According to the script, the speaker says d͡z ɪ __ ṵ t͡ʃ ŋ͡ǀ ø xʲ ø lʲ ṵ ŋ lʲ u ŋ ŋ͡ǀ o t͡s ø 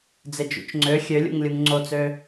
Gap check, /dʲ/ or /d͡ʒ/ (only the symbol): d͡ʒ